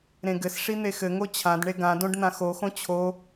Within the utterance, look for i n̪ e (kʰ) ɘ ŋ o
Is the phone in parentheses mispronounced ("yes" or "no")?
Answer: yes